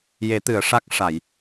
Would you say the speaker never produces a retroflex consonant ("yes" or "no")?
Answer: no